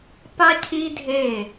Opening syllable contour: high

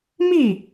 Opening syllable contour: falling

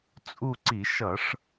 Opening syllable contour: falling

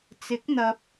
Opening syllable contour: rising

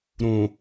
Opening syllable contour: low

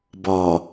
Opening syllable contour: low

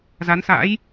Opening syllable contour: rising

